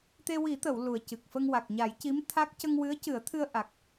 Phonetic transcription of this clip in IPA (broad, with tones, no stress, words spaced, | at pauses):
t̪e˧wi˨˩˦t̪ə˨˩˨w lu˨˩ə̯cɨ˨˩k̚fə˧ŋ wa˨˩k̚ɲa˨˩˦jci˧˥m t̪ʰa˦˥k̚ cə˧ŋwɨ˧˥ə̯cɨ˨˩˦ə̯ t̪ʰɨ˧ə̯ʔa˨˩k̚